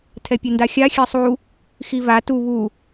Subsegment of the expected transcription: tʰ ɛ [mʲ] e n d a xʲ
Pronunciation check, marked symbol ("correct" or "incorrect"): incorrect